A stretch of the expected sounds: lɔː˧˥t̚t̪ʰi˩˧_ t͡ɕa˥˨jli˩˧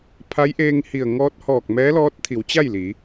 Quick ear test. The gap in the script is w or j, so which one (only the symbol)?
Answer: w